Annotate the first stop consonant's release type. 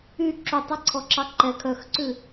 click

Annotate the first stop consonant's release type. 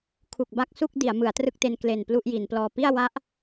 aspirated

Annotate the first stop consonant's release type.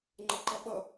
click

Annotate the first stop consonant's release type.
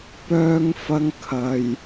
plain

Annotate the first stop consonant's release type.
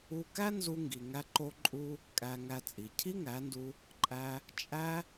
plain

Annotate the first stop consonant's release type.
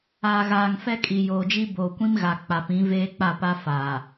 ejective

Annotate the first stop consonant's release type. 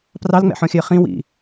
plain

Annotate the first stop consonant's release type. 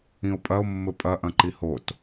ejective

